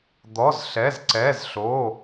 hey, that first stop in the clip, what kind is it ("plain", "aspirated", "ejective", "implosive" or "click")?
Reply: plain